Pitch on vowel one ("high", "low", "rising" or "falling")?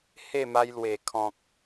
falling